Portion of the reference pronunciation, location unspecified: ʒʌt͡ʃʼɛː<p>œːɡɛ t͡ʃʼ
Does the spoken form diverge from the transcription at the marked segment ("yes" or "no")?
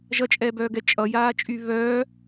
yes